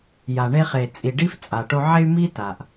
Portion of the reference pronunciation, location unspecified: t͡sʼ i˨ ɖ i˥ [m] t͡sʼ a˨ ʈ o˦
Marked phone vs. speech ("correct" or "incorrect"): incorrect